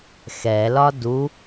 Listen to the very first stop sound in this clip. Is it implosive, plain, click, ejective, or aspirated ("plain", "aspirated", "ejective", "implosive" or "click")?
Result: plain